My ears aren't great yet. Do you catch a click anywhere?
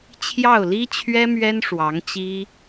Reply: no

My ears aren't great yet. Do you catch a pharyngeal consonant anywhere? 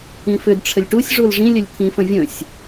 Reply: no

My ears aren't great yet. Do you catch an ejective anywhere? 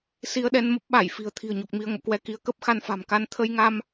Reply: no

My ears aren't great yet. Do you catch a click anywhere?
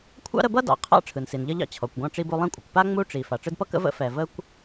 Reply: no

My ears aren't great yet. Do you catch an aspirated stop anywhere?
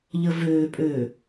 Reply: no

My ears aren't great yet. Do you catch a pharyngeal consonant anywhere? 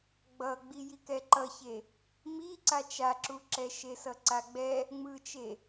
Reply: no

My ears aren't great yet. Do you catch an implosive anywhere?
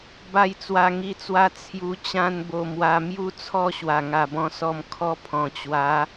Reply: no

